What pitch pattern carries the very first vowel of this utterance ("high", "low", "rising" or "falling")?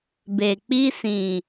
low